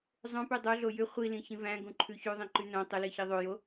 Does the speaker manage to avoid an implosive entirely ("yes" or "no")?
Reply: yes